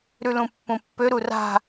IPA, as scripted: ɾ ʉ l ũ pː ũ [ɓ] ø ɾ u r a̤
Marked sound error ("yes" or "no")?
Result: yes